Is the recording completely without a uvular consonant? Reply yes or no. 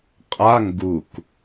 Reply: no